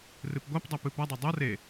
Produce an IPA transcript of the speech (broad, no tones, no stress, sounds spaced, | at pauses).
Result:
r ɨ p ɡʷ a p dˤ a p ɨ p a dˤ ɐ dˤ ɐ r e